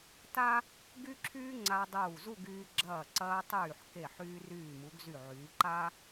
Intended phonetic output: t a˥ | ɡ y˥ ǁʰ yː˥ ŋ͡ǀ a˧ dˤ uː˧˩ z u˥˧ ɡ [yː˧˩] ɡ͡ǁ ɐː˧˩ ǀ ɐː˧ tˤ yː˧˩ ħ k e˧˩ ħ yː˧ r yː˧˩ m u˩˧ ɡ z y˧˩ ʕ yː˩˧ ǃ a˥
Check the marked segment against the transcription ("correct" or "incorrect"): incorrect